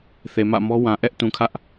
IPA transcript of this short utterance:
θ e˨ m ä̰˦˨ m ɔ˦ w ã˨ ʔ ɛ˦ ʔ t ũ˨ kʰ ä˦ ʔ

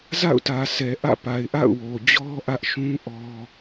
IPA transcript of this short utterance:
z a̰˦˨ ʊ̯ t ä˨ sʰ ɛ˨ ʔ ä̰˦˨ p a˨ ɪ̯ ʔ a̰˦˨ ʊ̯ w o˨ d͡ʑ ɔ˦ ʔ ä˦ ʔ ʃ ũ˦ ʔ ɔ˦

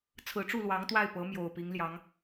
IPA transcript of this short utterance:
t͡sʰ ɹ̩˧˥ ʈ͡ʂ u˥˩ l w ɑ˧˥ ŋ t̪ w a˥˩ ɪ̯ p ɤ˧˥ m j o˨˩ ʊ̯ p i˧˥ ŋ l j ɑ˧˥ ŋ

